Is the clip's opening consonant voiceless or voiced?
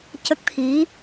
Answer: voiceless